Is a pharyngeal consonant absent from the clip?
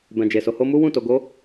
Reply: yes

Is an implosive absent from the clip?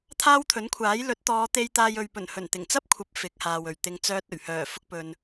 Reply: yes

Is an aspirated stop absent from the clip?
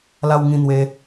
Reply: yes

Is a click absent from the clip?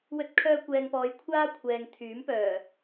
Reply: yes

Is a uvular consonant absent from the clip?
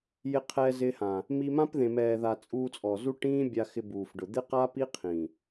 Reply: no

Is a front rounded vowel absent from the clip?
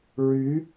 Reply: no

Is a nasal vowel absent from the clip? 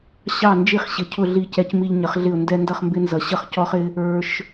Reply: yes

